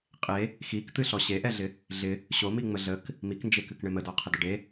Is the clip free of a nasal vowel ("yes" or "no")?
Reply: yes